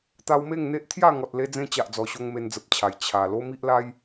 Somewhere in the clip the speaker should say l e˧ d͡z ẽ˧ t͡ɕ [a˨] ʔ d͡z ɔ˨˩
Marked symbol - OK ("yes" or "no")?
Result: yes